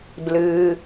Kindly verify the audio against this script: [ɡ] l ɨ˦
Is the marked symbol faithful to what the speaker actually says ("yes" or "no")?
no